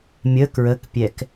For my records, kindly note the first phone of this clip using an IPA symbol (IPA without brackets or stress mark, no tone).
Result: mʲ